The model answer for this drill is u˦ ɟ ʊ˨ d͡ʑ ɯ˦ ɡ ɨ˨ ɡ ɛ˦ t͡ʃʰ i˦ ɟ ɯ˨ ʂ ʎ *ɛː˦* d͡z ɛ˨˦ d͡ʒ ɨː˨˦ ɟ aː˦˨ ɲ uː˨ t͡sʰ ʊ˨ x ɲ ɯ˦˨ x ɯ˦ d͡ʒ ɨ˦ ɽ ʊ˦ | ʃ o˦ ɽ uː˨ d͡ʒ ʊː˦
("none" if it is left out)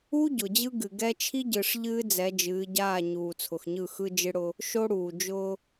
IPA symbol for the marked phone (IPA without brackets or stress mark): ɨː˦